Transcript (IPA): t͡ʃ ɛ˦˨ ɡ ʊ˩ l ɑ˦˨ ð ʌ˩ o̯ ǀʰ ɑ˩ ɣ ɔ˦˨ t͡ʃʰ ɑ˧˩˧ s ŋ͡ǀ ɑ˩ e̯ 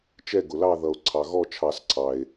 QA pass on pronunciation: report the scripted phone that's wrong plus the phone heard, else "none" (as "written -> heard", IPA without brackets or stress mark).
ŋ͡ǀ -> ǀʰ